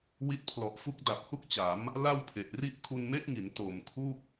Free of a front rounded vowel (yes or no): yes